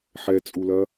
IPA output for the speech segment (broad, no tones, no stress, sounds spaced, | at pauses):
ħ ɛ t͡sʼ u l ɐ